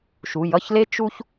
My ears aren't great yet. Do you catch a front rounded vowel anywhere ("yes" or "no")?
no